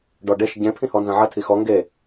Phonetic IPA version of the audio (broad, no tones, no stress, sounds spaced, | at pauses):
ɖ ɔ ɖ e ʃ ɟ ẽ pʰ ĩ h ɔ n z ɐ̃ ʕ ɐ tʰ i x ɔ ŋ ɡ e